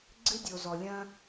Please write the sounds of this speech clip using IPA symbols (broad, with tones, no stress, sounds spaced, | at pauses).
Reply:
ɡ͡ǀ ɨ˧ dʲ o˨ z ɔ˨ lʲ ɐ̃˧